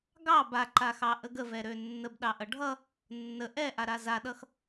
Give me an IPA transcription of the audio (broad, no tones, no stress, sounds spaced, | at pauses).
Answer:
ɡ ɑ b a ǃ a x ɑ ʔ ə ɡ ə v ɛ ɾ ø nː ə b ɗ ɑ ʔ ʌ ɖʱ ʌ | nː ə ʔ ɛ ʔ a ɾ a z a ɗ ʌ x